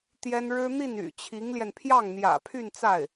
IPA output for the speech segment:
t̪jɛ˥n ɻɻ̩˥ n̪i˥˩ny̰˨˩t͡ɕʰi˧˥ŋljɛ˧n pʰjɑ˥˩ŋn̪jä̰˨˩pʰy˥˧nt͡sa˥˩ɪ̯

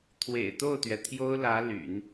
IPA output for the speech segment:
t̪ʰwḛ˨˩ɪ̯t̪o˥˩ʊ̯t̪ɥɛ˩ t̪ʰjo˥ʊ̯lä˧˥ ly̰˨˩˦n

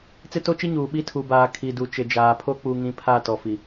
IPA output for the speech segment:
t͡sɪ˦to˦t͡ʃi˦ɲuː˨ ɓi˦ tʰu˨baː˨ kʰi˨du˨ t͡ʃɪ˨d͡ʒaː˨pʰo˦ k͡pu˨ŋĩ˨ pʰa˦˨ tɔ˨fi˨

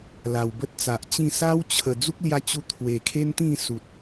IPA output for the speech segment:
la˨˩wbə˦t̚t͡sa˨ʔt͡ɕĩ˥˧ sa˦wt͡ɕʰə˨˩ d͡zu˦k̚lja˧t͡ɕu˧ t̪ʰwe˨˩kʰe˦nt̪ĩ˥˧ su˨t̚

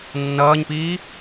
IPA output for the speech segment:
nːʌːɲpiː

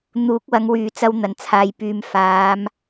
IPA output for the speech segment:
n̪uː˨˥k̚wɐ˨˧ŋwyː˨ t͡sɐ˧w n̪ɐ˨˩nt͡sʰaː˨jpyː˨m faː˨˧m

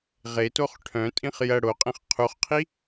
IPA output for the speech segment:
ʁetoχ ʈʰœ̃tʼĩχ jɐ ɽoqʼẽχ qʰuχqʰi

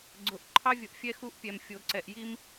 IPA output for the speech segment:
ɡ͡ǀʊ˨ʔ ǃʰɑ˦vʲʊ˨ʔfʲɛ˦ xu˦ʔpʲɛ˨m fʲo˨ǀɛ˨ʔ ji˦m

